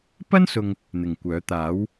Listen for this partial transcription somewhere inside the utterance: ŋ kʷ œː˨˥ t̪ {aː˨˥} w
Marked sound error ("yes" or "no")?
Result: no